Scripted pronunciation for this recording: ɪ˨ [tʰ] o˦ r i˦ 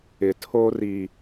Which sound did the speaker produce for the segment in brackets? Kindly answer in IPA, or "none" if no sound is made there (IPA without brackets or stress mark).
tʰ